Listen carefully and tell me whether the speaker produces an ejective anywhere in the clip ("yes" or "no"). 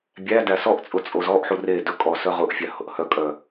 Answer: yes